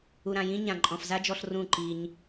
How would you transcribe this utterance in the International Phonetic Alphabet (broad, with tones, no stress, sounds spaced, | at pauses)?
u˨ ɾ ã˨ j ĩ˦ ɲ ã˨ ǃʼ ɔ̃˨ f z a˦ d͡ʒ ɔ˧ ɬ r ũ˦˨ ǃ i˧ ɲ